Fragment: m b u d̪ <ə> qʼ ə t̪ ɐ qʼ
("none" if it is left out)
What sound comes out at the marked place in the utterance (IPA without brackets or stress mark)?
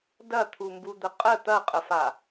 ə